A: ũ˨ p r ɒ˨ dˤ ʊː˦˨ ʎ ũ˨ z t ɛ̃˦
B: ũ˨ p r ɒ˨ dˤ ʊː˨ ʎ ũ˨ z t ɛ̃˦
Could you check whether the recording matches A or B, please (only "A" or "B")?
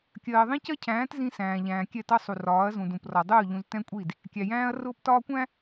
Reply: A